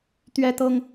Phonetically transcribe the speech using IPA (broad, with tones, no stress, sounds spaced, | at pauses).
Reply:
t̪ ɥ ɛ˦ t̪ ɤ˦ ŋ